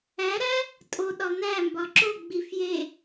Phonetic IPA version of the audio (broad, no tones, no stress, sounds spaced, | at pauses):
æ ɾ æ | tʼ o ɗ ɒ n̪ æ m b ɒ ǁ o ɡ͡b i f j e